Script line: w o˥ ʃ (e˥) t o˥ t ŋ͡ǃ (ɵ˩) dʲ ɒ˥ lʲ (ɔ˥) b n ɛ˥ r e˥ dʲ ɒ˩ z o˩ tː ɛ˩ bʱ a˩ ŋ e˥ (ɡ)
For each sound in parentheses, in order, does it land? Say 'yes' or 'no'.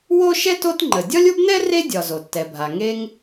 no, no, no, no

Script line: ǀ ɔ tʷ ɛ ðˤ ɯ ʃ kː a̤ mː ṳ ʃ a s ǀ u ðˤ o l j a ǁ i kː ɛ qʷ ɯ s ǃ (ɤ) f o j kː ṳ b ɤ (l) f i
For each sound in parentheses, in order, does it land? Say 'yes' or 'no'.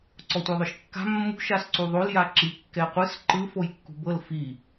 no, yes

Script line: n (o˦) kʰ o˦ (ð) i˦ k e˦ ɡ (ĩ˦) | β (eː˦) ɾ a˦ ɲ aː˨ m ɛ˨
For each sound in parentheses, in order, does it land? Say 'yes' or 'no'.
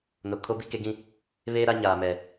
no, no, yes, yes

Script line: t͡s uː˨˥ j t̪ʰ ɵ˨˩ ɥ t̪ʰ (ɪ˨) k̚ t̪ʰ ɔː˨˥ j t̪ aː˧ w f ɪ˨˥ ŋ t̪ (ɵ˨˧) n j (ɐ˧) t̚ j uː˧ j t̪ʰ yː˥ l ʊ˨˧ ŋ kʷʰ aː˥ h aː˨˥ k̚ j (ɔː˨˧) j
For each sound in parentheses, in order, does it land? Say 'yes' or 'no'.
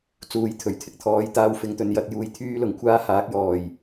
yes, yes, no, no

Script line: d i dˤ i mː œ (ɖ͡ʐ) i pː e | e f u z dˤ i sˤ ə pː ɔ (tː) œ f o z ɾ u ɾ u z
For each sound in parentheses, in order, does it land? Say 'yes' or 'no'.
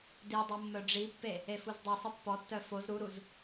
yes, yes

